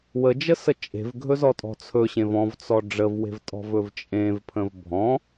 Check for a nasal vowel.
present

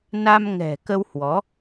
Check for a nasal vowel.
absent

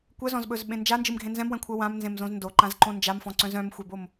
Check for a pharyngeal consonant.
absent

